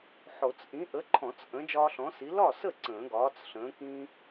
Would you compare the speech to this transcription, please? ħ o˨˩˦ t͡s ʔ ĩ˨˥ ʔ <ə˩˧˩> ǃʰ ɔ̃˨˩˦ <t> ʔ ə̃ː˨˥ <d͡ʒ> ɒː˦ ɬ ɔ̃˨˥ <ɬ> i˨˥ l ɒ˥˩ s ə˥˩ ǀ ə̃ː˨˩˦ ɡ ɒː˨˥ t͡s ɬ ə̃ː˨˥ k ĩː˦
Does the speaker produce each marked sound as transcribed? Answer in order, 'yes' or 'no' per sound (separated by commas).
no, no, yes, no